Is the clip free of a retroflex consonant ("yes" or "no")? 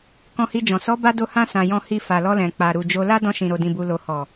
yes